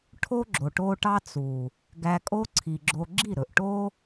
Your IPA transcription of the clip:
ʈʰo˦ ɡ͡ǁo˨ʈo˧ ʈɑ˦t͡su˨ | ɡæ˧kʼo˦ǀʰi˨ɡ͡ǁo˧ ɡ͡ǁi˦˨ ɾɵ˨ʔʈo˦

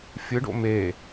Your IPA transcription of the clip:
fʲɯɖo̰ me

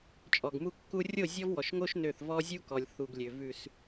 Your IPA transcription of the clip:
t͡ʃʼɔ˨ɡmu˦kːu˦ rʲo˦˨zʲɔ˦vwɔ˨ʃŋo˦ʃ nø˦˨θ vɔ˦zʲu˦kɔ˨lʲ θu˨ɡlʲø˨ vʉ˨s

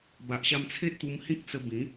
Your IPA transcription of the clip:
ba˨ʔɕa˧mt͡sʰe˦t̚t̪u˧m hĩ˦k̚t͡sə˧bĩ˨˦

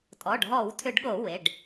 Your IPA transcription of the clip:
tʼɔ˩˧˩ɖɦɔ˧˩˧wtʰʏ˧˩˧ɖɠo˧˩˧ we˩˧˩ɖ

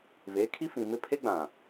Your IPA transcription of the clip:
ve˨˦kʰi˦fĩ˨mɪ˦ pʰe˦ɡ͡bã˨

